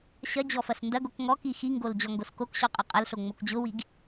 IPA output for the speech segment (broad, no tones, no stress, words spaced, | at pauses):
ɕɐ d͡ʑɔfɐsndɐɡok ŋɔki xiŋɡol d͡ʑɔŋɡoskokɕɔ qʼɛqʼɐlɬo ŋ͡mokd͡ʑʊwiɡ